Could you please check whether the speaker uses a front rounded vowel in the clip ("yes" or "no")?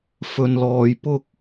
no